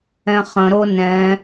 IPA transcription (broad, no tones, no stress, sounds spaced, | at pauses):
ɛ̃ χ ə̃ ɾ o n ɛ̃